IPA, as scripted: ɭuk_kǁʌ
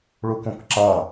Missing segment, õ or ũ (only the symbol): õ